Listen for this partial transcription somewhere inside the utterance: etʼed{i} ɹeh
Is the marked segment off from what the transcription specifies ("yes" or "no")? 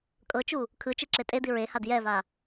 no